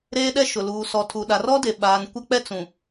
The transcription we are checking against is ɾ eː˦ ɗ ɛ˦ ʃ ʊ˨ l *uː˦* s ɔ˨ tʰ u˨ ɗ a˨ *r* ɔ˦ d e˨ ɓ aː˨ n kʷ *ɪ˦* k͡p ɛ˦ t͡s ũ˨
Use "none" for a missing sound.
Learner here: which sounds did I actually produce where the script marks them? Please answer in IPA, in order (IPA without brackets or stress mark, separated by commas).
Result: uː˨, r, ɛ˦